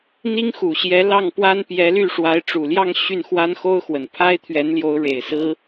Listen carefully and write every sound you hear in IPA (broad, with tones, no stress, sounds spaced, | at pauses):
n̪ i˥ ŋ x u˨˩ ɕ j ɛ˧˥ l ɑ˥˩ ŋ p w a˥ n p j ɛ˧˥ l y˥˩ ʂ w a˧˥ ɪ̯ ʈ͡ʂ u˨˩ l j ɑ˥˧ ŋ ɕ y˥˩ n x w a˥ n x o˥ ʊ̯ x w ə˨˩ n pʰ a˥ ɪ̯ t̪ʰ ɥ ɛ˧˥ n l j o˧˥ ʊ̯ ɻ e˨˩ ɪ̯ s ɹ̩˥